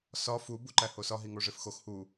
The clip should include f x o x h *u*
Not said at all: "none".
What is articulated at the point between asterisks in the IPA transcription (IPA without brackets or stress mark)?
u